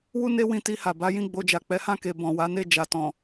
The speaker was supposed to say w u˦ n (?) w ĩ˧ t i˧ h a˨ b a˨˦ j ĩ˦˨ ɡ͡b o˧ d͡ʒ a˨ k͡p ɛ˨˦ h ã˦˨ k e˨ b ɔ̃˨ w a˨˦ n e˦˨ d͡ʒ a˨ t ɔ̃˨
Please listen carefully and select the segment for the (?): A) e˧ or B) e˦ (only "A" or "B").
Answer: B